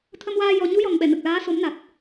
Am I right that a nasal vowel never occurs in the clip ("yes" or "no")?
yes